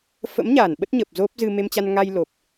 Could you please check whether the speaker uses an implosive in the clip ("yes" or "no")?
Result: yes